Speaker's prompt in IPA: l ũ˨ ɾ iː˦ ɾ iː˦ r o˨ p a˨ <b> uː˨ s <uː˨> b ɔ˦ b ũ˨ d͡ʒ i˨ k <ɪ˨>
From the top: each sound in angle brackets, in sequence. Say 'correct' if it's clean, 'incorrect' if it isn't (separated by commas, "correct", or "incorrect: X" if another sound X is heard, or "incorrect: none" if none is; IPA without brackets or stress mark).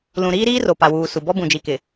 incorrect: w, incorrect: u˨, correct